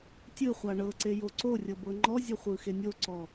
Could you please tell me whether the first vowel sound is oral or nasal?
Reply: oral